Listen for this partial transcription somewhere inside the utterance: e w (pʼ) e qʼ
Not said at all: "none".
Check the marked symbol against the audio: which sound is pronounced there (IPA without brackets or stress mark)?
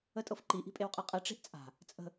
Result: qʼ